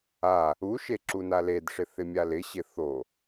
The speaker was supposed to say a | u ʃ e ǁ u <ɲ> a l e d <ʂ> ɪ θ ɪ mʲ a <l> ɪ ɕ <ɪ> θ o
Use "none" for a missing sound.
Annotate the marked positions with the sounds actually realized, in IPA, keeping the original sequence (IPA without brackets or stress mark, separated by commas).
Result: n, ʂ, l, ɪ